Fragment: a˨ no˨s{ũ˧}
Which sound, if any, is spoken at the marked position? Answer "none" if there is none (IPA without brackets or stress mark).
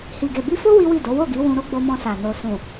ũ˨